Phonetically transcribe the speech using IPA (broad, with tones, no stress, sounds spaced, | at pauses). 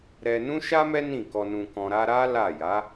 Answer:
ɾ ɛ˧ n ũ˦ ʃ a˦ m ɛ˦ n ĩ˦˨ k ɔ˧ n ũ˧ k ɔ̃˧ ɾ a˧ ɾ a˦ l a˦˨ j a˨˦